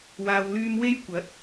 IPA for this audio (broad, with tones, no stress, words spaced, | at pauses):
waː˨wlyː˧mwe˥jkʷɐ˨˥t̚